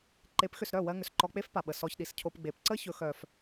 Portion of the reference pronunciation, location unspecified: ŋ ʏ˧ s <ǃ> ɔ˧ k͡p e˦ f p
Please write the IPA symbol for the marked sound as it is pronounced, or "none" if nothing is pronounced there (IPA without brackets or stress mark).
ǃ